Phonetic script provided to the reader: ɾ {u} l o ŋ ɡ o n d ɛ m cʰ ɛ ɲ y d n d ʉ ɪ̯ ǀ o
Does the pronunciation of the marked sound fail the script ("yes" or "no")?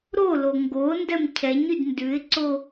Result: yes